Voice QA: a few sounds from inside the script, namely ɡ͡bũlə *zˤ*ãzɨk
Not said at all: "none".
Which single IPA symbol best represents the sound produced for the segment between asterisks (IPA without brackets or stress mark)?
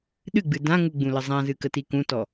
zˤ